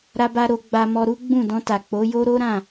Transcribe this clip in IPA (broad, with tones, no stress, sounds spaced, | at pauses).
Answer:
ɾ a˦ b a˦ ɾ o˧ ɡ͡b a˧ m ɔ˧ ɾ u˦ ɡ͡b ũ˦˨ d ɔ̃˧ t a˨ k͡p o˨˦ j o˦ ɾ o˦ ɾ ã˦˨